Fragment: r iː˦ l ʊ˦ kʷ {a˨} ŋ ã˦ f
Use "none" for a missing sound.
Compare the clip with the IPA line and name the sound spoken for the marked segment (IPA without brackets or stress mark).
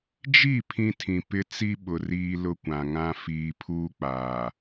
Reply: ã˨